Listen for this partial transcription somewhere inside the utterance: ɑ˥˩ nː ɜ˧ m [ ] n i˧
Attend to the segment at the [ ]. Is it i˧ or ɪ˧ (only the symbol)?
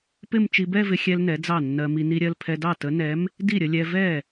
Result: i˧